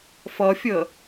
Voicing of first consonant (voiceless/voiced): voiceless